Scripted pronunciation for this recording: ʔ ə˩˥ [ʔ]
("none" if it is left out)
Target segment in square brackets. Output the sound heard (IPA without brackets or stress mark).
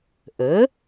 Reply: none